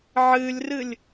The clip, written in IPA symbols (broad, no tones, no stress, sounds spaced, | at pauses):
ʕ ɨ lʲ r ɨ lʲ